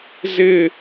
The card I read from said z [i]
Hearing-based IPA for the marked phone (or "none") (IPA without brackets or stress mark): ɪ